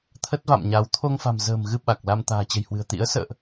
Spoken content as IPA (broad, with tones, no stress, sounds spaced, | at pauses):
t̪ʰ ə˦˥ t̚ v a̰˧˨ m ɲ a˨˦ w t̪ʰ o˧ ŋ f a̤˨˩ m z ə̤ː˨˩ m ɣ ɨ˧ ɓ a˨˩ k̚ l a˧ m t̪ a̤ː˨˩ t͡ɕ ə̤˨˩ j h w ɨ̤˨˩ ə̯ t̪ ḭ˧˥ ə̯ s ə̰ː˧˨ ʔ